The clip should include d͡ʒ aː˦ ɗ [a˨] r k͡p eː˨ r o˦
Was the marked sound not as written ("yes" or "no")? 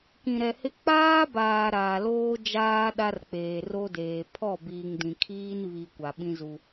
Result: yes